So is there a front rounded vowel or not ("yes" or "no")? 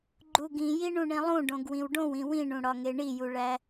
no